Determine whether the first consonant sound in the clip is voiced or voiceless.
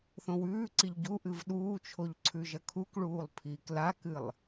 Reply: voiceless